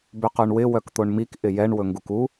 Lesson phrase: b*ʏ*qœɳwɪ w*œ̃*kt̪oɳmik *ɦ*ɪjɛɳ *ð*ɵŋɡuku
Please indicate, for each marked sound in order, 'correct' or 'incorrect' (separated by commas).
correct, incorrect, incorrect, incorrect